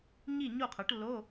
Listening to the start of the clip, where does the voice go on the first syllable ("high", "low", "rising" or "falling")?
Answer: falling